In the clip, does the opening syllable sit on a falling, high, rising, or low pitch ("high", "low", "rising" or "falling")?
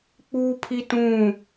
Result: high